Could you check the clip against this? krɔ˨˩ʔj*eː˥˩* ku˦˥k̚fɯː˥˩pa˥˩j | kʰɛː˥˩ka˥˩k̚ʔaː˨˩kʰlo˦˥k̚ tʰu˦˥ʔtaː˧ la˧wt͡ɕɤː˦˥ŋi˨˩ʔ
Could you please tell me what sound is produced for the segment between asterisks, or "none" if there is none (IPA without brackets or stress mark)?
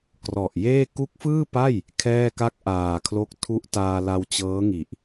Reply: eː˥˩